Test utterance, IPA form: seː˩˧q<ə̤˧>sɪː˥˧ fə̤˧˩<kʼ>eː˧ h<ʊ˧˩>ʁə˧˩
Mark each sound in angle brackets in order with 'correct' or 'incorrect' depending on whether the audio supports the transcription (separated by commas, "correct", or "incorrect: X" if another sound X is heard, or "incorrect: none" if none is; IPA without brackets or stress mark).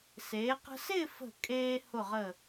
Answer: correct, correct, correct